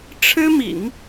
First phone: ʈ͡ʂʰ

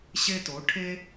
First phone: ɕ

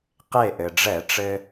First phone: q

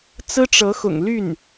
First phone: t͡s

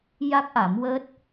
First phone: j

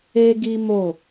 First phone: e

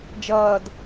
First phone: d͡ʒ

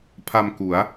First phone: pʰ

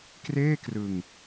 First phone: k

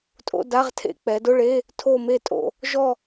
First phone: tʼ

